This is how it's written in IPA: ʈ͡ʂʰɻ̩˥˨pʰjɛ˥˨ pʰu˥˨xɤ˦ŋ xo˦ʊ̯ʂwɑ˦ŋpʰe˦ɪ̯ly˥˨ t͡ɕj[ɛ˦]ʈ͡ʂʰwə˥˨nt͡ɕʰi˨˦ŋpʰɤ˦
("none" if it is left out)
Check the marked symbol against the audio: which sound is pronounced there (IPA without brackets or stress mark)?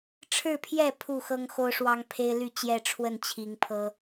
ɛ˥˨